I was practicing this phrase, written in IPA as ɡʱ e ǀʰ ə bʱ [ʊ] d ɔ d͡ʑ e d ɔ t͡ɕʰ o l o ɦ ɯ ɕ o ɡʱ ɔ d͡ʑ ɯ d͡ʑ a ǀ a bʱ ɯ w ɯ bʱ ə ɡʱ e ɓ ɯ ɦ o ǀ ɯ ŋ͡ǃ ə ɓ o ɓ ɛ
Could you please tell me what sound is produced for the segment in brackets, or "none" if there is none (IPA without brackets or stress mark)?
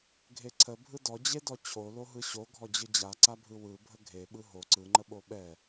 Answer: ɯ